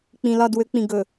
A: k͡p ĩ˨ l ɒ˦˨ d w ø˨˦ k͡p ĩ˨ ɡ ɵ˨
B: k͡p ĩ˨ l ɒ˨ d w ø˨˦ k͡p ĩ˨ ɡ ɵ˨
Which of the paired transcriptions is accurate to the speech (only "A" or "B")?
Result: A